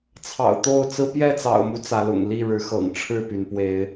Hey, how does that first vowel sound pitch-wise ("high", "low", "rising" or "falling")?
low